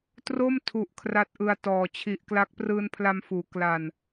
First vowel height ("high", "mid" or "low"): mid